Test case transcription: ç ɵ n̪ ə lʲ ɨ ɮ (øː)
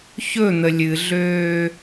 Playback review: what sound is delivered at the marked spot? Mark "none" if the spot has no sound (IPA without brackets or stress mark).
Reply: øː